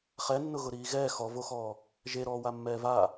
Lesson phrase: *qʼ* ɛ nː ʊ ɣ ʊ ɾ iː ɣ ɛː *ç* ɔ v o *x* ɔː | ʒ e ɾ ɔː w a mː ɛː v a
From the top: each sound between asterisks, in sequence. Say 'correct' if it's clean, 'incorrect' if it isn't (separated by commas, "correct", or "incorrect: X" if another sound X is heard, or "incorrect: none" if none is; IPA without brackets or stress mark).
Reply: incorrect: χ, incorrect: x, correct